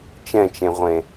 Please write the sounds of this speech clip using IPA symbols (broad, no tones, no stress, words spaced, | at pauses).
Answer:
t͡ʃɛ̃t͡ʃẽʁʷẽ